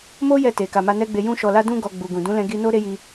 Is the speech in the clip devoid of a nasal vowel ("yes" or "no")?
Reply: no